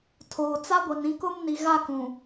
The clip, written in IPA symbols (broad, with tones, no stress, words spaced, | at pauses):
tʰoː˨t͡sa˦ɡʷi˨n ĩ˦kʊ˦m ni˨ɣa˦˨kũ˨